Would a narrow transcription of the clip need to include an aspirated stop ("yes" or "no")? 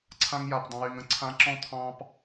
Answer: yes